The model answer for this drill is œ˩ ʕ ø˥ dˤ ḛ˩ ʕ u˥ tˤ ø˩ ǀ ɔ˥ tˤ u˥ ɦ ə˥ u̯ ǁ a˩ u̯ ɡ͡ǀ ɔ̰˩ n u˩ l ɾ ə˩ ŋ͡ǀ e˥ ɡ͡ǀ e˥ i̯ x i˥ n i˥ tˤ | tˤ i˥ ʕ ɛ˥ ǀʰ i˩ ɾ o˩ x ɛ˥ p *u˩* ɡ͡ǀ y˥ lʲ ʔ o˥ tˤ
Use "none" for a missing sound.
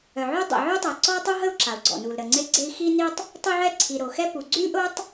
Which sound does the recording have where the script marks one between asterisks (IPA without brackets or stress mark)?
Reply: u˩